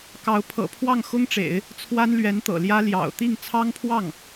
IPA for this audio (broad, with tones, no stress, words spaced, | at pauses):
kɑ˧˥ʊ̯ pʰɤ̰˨˩pʰwɑ˥˩ŋxʊ˥ŋʈ͡ʂḛ˨˩˦ɪ̯ | t͡sʰwa˥nlɥɛ˧˥nt̪ɤ̰˨˩ljä˥ ljɑ̰˨˩ʊ̯ t̪i˥˩ŋ t͡sʰɑ˥ŋpʰwɑ˥˩ŋ